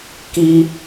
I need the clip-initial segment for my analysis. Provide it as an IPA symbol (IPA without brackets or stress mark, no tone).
k